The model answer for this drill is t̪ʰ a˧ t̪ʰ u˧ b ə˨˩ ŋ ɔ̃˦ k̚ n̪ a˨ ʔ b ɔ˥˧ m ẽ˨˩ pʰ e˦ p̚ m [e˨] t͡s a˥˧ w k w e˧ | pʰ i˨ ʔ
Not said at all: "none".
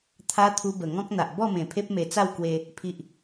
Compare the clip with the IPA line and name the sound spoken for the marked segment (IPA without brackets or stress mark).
e˧